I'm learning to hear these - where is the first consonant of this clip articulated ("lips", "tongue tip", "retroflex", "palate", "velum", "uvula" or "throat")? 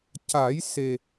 palate